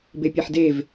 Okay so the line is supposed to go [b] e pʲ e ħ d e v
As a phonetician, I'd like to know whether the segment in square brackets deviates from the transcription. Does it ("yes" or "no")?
no